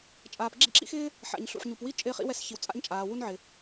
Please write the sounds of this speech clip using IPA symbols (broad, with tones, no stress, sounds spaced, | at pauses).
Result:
t͡ʃʼ aː˩ p ɡ͡ǁ ḭ˥ ǁ ḭ˥ x ɪː˥ | ħ a̰˩ ɲ ɬ ṵ˩ ħ ɲ u˩ p w i˥ t͡ʃʼ ɪː˥ χ ḭ˥ w ɛ˥ s ç i˩ w t͡sʼ a̰˥ ɲ t͡ʃʼ aː˩ w u˥ n ʕ ɪ˩